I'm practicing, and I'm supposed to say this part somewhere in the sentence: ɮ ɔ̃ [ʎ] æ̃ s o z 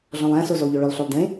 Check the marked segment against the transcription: incorrect: lˠ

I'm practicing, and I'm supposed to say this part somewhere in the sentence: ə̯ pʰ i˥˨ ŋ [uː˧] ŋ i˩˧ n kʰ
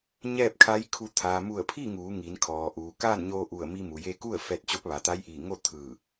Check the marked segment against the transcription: incorrect: uː˩˧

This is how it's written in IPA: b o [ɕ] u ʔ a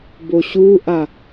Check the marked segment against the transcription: correct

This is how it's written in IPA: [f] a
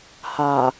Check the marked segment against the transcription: incorrect: h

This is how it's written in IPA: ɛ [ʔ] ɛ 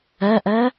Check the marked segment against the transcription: correct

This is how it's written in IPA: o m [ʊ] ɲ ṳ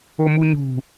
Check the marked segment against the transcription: incorrect: u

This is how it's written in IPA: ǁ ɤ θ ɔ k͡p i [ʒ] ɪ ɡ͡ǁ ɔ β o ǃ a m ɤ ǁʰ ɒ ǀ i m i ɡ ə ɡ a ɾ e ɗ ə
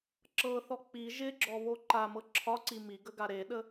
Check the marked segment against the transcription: correct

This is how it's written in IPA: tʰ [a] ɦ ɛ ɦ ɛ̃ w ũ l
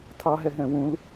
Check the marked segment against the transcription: incorrect: ɑ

